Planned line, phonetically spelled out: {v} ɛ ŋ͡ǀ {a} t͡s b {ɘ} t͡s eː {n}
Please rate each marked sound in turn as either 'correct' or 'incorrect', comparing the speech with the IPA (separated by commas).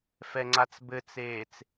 incorrect, correct, correct, incorrect